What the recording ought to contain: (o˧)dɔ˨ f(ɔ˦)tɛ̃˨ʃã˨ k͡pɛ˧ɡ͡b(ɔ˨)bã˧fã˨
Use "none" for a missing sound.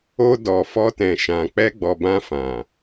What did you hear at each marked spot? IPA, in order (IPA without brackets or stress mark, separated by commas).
o˧, ɔ˧, ɔ˨